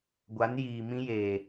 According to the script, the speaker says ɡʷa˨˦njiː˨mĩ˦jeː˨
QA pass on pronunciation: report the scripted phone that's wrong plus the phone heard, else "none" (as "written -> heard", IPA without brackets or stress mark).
none